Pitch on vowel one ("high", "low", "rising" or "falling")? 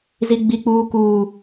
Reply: high